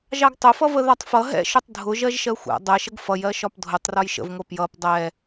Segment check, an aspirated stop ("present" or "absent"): absent